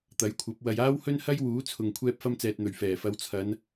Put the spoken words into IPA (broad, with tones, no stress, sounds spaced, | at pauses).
t̪ ɐ˨˥ j kʷʰ ɐ˨˥ p̚ w ɐ˧ j aː˥ w h ɵ˥ n h ɐ˥ j w uː˨˥ t͡sʰ ʊ˨ ŋ kʷʰ ɛː˧ p̚ f ɐ˧ m t͡s ɛː˨ t̚ n̪ ɵ˨˩ ɥ f ɛː˨˩ f ɐ˨˧ w t͡sʰ ɐ˨˧ n